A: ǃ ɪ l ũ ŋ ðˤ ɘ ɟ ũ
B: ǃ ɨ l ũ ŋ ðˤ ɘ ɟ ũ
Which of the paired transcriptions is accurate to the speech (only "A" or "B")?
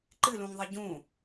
B